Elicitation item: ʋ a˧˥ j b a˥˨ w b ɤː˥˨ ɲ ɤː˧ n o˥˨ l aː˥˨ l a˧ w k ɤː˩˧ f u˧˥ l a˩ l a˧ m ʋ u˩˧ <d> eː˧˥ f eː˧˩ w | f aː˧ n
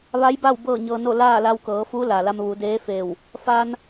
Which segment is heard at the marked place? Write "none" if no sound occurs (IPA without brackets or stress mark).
d